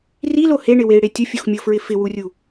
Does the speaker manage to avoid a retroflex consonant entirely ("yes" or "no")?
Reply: no